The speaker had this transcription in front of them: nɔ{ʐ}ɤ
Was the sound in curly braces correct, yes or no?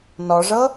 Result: yes